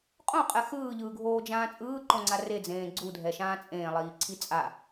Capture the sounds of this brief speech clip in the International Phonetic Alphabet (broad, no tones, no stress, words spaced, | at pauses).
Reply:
qʼõqʼɛ xɯːʎɯːɡʱoːd͡ʒãː t͡sʼɯːǃõŋ͡ǀa red͡zẽː ɡ͡ǀudʱɛʃãː t͡sʼẽːlˠiːǀʰi t͡sʼa